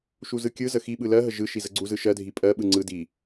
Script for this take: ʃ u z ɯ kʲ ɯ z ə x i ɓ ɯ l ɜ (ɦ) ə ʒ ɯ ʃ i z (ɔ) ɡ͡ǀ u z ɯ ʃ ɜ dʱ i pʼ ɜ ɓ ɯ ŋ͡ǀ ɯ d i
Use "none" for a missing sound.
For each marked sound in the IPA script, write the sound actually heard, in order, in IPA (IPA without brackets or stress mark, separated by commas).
ɦ, ə